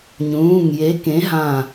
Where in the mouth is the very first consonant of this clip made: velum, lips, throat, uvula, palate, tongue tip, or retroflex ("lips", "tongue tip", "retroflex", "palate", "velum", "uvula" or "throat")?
palate